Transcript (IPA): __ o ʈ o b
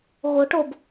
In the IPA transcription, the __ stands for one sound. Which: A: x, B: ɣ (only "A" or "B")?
B